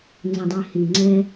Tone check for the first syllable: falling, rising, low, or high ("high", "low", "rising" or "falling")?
low